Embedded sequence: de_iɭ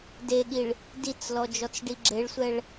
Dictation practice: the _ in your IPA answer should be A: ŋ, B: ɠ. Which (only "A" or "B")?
B